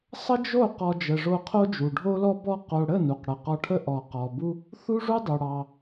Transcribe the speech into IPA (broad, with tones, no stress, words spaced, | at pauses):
sˤə˦d͡ʒo˦˨ qɔ˧d͡ʒə˨ʐo˧ qʰo˦d͡ʒu˨ɖʱo˦lɔ˦ bɔ˧qo˨ɽə˦˨ nu˨qɽə˨qɔ˧ʈʰə˦ ʔɔ˨qɔ˨bu˦ | θu˦ʐu˦dˤu˨ ɽɑ˧